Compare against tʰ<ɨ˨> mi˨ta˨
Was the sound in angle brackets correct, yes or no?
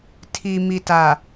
no